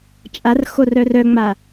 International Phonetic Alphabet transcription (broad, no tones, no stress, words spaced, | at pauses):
t͡ʃʼarxor œrœŋ͡ma